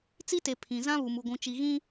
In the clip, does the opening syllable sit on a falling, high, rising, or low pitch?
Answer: high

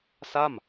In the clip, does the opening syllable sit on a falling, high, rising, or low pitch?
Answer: falling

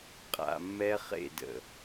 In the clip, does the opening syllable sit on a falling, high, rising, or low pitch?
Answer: low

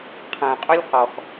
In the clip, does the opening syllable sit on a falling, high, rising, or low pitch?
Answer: low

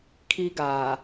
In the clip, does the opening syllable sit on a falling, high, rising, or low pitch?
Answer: high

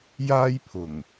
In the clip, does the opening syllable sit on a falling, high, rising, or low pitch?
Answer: high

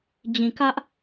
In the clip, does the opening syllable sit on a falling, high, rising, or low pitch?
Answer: low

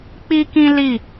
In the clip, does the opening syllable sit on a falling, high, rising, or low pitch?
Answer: high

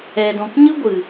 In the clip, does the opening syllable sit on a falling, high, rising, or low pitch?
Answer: low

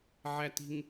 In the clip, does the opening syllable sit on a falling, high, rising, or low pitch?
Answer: low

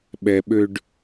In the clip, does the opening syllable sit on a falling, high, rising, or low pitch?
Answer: low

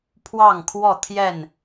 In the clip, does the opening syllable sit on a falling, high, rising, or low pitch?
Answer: falling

